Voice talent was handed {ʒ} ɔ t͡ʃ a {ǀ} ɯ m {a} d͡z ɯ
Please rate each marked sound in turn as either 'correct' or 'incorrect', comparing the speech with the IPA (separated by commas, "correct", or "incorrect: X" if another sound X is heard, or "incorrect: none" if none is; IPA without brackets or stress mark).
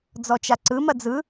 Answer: incorrect: d͡z, correct, incorrect: ɐ